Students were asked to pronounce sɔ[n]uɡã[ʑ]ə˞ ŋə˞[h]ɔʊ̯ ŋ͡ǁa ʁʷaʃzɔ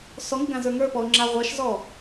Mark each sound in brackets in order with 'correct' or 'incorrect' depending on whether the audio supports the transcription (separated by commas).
incorrect, incorrect, incorrect